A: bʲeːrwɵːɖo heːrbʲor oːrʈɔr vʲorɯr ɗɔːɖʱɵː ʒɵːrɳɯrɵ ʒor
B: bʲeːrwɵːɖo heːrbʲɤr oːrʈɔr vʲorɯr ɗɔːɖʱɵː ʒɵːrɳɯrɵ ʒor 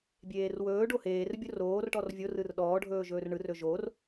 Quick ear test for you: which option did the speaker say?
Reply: A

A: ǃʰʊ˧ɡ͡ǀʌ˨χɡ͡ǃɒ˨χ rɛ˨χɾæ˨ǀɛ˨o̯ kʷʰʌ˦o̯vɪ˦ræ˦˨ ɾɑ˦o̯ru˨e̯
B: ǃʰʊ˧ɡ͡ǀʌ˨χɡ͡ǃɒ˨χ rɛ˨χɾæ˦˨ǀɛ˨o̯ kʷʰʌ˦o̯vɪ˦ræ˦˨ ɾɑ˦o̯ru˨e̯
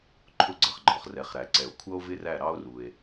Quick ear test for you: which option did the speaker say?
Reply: A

